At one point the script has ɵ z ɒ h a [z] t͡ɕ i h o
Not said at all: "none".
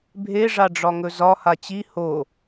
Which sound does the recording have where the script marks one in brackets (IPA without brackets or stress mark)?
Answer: none